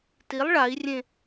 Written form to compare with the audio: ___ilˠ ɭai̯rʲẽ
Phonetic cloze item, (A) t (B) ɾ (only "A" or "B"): A